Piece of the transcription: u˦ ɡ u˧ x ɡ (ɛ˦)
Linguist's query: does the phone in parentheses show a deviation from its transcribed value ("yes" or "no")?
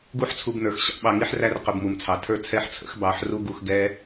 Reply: no